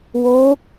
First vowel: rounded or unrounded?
rounded